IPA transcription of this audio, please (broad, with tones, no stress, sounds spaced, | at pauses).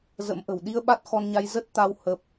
z ə̰˧˥ m ʔ ə̤˨˩ w ɗ i˧ ə̯ ɓ a˦˥ t̚ x ɔ˧ n ɲ a˧ j z ə˦˥ t̚ t̪ a˧ w h ə˦˥ p̚